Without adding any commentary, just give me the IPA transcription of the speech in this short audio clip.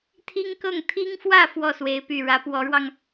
t̪ʰi˥ŋkɤ˥˩ŋ t̪ʰi˥ŋfwä˥˧ fwɔ˥˩swe˧˥ɪ̯py˨˩ ɻä˧˥pwɔ˧˥ɻwɑ˧ŋ

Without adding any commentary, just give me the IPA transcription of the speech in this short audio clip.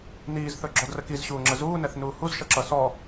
niːzθɵɡ͡ǁɔdrə kizɕuːŋ͡ǁə zuːnɛθnuː huzʃʌǁʌ sɔ

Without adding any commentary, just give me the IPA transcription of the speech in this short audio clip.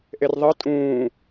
ʔerðˤɤ tʼũː

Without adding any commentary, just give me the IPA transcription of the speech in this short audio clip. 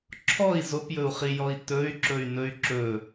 ǁʰɔi̯ zopjɵu̯χijɔi̯ tɵy̯ǁɵy̯nɵy̯ ǁɵ

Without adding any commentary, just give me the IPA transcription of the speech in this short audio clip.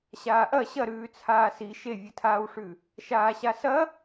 ɕaːʔɐ ɕɐɾʉː t͡sʰaːsi ʃevʲɨtʰaːwʂʉ | ʃaːɕasɐ

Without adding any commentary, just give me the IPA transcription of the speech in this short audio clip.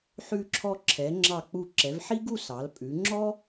ħʉ˧ǁʰɔ˧ǁʰɛ˩˧ ŋ͡ǁɑ˧˩k͡pu˧˩ǁɛ˩˧v ħi˥ɡu˥˧sɑ˩˧l pʼʉ˩˧ŋ͡ǁɔ˥

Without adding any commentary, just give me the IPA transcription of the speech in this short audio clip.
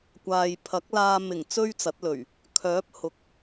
kʷaː˨jpʰɐ˨˥k̚laː˧ mɪ˨˩ŋ t͡sɵ˥ɥt͡sɐ˨˥t̚lɵ˨˩ɥ | kʰœː˨˥p̚hʊ˨k̚

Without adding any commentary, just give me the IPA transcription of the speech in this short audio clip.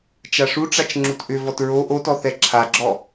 t͡ʃaʂuʈ͡ʂat͡ʃ ŋ͡ǁutʔʏvɔt ɹo ʔotɔ θɛǁʰaɡ͡ǁɔ

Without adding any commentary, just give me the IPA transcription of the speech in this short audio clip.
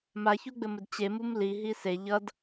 maçuɡ͡bɘmɘd t͡ɕemum liɦi se ʎʌd

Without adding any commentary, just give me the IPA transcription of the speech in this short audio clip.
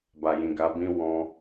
ba˨jĩ˨ ɡa˨˦bĩ˦ wɔ̃˧

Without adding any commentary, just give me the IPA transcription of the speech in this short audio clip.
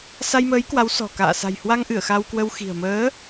sa˧jməː˨˦j kwa˨˦wsɔ̤˨˩ ka̰ː˧˨ sa̤˨˩jhwa˧ŋʔɨ˧˩ə̯ xa˧wkwə˧w xi̤˨˩ə̯ məː˨˦

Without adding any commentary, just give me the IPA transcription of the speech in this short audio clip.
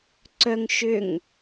ǀœŋ ʃʏŋ

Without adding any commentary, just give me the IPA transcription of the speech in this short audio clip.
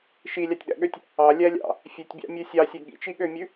ʃilʲɑtʲɗæ̰ɠøtʲ | ɑlʲælʲɑ̰ | fʲʉtʲbʲɑ̰mʲʉ sʲɑsʲø ɠḭt͡ʃiɠømʲʉ

